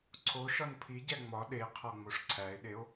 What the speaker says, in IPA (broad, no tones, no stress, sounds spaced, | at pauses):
ǀʰ o ʃ ɒ n pʰ i ɟ æ ŋ͡m ɒ ɗ e qʰ ɒ ŋ͡m o ʂ ǀʰ æ e̯ ɗ e o̯